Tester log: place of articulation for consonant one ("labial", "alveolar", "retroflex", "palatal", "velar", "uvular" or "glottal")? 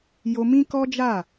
palatal